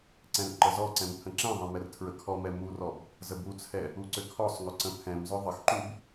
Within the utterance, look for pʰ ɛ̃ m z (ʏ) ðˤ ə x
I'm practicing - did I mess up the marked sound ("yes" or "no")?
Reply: no